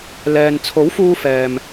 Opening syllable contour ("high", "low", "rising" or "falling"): low